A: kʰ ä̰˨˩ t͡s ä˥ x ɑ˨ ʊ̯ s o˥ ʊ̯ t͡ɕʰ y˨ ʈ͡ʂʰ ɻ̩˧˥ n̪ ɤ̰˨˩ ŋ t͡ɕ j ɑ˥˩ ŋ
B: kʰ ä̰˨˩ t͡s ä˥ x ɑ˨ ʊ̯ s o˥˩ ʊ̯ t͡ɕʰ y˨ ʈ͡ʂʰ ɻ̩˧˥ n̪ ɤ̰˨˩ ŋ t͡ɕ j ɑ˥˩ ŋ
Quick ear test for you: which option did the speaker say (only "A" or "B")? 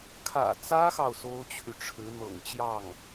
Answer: A